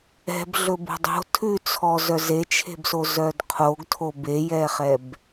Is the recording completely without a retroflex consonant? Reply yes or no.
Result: yes